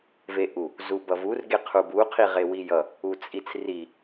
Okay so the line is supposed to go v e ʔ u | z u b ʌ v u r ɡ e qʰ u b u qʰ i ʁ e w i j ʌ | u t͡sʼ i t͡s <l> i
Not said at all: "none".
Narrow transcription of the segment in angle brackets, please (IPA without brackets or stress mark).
r